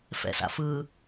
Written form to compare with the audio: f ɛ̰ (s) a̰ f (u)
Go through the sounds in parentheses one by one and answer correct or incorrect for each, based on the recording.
correct, incorrect: ɯ

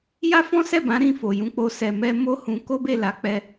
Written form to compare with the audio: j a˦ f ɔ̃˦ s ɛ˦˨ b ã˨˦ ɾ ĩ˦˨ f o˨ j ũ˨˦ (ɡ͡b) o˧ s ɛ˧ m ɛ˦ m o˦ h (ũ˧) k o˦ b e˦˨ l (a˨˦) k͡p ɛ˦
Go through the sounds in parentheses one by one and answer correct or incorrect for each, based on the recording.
incorrect: k͡p, correct, correct

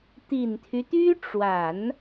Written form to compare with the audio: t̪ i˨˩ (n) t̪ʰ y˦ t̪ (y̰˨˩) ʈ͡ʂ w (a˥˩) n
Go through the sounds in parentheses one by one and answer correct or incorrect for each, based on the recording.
correct, incorrect: y˥, incorrect: a˨˩˦

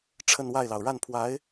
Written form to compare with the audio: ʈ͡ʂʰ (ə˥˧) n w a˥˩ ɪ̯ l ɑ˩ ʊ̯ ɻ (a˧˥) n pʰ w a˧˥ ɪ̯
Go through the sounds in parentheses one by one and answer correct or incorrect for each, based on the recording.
correct, incorrect: a˥˩

